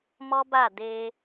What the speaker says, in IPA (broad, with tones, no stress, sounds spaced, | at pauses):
m ɔ˦ b a˦˨ d e˧